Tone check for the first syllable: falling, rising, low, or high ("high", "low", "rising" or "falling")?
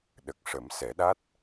low